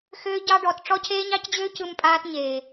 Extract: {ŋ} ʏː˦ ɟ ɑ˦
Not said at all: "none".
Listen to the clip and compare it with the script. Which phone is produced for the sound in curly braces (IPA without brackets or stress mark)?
x